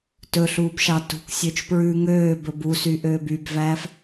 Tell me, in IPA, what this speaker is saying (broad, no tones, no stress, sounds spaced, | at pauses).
t ɵ ɬ uː b ʃ ɑ t ṳ k sʲ ø t͡ʃ p ɹ ʉ ŋ øː b ɵ b u s y ʔ øː b y b v æː f